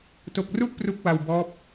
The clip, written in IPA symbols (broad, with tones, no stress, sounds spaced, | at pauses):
t o˨˩ k̚ r u˦˥ ʔ p r u˦˥ k̚ w a˧ w b ɔː˦˥ p̚